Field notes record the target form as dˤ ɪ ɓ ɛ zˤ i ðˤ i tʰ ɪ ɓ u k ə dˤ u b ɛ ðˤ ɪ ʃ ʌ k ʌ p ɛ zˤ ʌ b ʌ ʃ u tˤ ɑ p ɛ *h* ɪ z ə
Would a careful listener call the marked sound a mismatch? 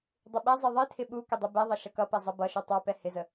no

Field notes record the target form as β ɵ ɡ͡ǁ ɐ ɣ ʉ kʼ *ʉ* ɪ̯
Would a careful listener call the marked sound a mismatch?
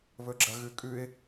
no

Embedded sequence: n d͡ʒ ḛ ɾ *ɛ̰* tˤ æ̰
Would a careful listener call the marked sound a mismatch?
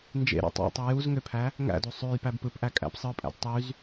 yes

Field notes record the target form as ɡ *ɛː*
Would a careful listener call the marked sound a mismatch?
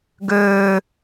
yes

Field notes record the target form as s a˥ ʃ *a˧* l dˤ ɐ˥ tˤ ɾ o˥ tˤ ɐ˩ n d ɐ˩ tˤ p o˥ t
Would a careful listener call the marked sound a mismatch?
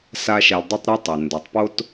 no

